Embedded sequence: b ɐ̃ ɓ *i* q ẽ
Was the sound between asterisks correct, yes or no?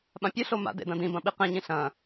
yes